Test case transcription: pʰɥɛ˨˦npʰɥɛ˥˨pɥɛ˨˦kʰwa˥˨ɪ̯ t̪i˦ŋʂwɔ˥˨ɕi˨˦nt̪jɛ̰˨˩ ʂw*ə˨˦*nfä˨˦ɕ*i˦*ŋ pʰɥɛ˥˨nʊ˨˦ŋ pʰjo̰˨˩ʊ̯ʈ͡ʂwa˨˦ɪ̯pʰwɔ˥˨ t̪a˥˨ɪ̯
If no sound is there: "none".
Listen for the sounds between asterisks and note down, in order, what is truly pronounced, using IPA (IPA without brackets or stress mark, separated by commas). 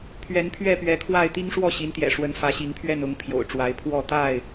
ə˨˦, i˨˦